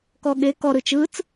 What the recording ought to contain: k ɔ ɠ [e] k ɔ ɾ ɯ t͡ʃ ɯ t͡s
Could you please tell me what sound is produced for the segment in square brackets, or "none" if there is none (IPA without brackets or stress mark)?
e